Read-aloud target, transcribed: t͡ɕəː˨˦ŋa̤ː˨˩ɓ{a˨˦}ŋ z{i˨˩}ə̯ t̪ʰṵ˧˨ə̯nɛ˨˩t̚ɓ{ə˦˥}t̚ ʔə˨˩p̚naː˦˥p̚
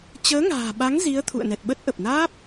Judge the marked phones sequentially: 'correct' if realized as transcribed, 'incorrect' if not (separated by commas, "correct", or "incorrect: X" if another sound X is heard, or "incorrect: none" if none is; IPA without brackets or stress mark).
correct, incorrect: i˨˦, correct